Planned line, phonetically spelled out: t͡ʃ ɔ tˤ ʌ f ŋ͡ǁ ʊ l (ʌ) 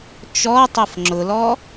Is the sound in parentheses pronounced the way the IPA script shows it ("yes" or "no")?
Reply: no